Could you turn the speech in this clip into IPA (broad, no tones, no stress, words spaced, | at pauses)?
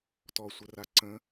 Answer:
tɔsʷəra ǀə̃